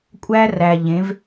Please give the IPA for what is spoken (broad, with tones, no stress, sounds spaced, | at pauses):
kʷʼ æː˦ r æː˨ ʎ ẽ˨˦ v